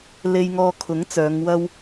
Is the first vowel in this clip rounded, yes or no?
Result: no